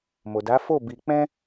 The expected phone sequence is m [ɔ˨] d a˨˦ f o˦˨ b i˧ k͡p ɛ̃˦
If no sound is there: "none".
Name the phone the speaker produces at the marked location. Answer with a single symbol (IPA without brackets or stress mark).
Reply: o˨